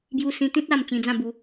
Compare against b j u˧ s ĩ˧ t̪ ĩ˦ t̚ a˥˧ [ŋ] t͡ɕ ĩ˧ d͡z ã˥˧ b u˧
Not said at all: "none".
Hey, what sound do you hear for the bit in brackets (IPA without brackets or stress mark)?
m